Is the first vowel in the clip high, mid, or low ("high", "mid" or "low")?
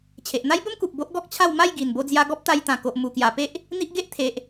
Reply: mid